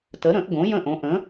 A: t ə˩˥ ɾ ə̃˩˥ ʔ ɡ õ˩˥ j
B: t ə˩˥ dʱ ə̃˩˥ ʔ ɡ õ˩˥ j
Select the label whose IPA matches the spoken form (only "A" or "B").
A